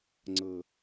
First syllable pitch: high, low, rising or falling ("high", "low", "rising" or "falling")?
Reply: low